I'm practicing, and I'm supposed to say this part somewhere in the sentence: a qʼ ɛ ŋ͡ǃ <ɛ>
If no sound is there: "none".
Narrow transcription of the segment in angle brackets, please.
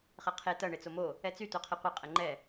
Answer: ɛ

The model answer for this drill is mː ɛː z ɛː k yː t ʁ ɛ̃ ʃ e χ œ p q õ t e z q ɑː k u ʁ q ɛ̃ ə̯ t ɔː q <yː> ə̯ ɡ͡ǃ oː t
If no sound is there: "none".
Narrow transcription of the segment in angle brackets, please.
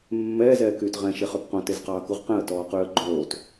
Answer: yː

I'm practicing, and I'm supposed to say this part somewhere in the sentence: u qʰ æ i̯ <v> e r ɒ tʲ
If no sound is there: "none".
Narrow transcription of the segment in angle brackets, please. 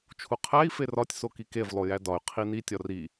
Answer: f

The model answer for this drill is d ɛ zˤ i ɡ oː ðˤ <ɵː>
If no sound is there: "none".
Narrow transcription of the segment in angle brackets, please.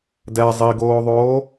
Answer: oː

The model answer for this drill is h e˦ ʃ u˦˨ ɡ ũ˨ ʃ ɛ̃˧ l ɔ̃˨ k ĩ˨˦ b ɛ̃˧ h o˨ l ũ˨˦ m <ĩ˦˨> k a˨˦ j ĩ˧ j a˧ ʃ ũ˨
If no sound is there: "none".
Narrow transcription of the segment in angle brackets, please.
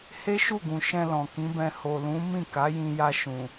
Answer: ĩ˦˨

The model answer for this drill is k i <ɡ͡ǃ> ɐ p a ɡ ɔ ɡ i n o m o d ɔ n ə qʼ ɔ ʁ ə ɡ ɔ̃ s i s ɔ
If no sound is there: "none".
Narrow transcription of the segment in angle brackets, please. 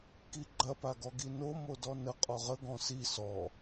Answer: ɡ͡ǃ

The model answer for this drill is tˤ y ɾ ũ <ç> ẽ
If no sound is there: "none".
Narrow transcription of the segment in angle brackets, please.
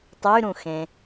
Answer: x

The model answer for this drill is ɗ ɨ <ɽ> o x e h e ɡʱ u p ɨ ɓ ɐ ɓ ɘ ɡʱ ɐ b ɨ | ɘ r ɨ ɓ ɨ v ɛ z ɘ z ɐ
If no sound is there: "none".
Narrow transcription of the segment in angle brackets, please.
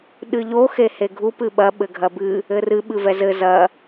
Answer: ʎ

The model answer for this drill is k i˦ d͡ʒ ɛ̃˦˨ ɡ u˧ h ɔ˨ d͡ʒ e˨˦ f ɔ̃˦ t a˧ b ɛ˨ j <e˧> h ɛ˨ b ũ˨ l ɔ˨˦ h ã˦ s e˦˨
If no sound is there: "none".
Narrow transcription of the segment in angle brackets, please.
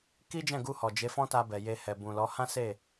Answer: e˧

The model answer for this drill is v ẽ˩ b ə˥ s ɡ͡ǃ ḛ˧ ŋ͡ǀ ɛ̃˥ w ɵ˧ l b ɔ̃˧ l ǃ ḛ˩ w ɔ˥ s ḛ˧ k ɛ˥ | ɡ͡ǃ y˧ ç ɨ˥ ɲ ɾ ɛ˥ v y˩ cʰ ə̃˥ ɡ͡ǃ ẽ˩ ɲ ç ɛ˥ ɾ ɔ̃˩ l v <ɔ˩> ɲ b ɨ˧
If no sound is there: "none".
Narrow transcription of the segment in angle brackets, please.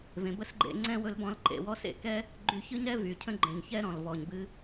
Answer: ɔ˩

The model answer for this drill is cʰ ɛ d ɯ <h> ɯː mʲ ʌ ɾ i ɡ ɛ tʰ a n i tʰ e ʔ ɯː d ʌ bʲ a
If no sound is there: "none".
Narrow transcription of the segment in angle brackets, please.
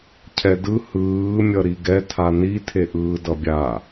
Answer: h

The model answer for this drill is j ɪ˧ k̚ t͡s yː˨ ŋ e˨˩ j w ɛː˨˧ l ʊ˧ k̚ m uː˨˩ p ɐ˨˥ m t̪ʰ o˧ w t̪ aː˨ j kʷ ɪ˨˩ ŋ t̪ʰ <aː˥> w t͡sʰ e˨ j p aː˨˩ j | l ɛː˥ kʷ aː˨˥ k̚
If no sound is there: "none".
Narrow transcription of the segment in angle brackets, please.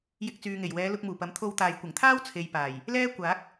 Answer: aː˥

